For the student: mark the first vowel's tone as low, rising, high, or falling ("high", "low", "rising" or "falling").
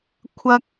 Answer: high